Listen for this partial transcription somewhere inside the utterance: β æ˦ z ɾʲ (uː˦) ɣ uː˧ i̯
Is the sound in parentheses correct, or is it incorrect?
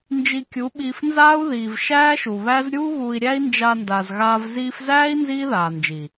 correct